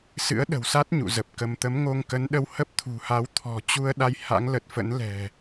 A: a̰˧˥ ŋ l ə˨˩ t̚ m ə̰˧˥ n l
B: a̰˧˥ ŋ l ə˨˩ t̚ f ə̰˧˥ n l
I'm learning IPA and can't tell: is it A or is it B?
B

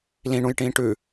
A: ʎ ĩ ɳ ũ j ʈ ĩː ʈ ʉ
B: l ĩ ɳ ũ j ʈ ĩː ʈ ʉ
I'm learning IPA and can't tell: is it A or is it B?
B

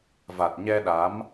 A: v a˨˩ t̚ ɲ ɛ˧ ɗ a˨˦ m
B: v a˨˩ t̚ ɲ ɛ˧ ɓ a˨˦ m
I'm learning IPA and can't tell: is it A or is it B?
A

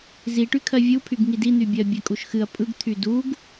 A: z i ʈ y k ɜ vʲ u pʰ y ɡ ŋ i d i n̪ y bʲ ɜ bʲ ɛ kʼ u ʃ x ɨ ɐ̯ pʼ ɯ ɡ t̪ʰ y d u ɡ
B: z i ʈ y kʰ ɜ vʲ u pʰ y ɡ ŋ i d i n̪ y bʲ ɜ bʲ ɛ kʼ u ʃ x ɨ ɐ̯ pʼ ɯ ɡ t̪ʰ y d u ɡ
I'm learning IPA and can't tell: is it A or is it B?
B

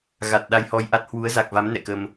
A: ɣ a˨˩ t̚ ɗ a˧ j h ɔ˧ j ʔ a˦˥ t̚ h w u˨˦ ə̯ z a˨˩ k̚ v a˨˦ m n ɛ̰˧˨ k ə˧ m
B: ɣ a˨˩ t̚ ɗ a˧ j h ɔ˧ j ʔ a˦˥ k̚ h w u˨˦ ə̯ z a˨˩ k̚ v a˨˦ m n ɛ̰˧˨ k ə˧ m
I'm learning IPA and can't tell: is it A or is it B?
A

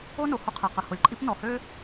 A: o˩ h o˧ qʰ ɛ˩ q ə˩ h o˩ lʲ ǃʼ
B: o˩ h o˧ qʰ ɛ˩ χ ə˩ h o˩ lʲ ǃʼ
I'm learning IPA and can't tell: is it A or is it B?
A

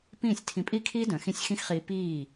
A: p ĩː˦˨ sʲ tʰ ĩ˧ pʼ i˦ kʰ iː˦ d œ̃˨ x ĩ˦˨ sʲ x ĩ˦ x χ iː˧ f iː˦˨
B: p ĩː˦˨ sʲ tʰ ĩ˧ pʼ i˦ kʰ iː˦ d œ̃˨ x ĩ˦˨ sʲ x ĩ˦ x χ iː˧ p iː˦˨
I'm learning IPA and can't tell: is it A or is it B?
B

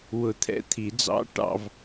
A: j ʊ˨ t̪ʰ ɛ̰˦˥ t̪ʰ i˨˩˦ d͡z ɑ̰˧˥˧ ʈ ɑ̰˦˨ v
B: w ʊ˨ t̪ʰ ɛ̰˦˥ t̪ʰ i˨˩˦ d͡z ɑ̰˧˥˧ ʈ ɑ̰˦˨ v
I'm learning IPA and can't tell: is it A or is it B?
B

